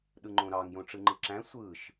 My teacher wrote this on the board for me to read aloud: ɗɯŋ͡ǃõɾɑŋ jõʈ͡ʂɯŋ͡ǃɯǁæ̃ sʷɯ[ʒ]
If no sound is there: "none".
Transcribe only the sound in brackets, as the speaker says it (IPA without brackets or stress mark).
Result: ʃ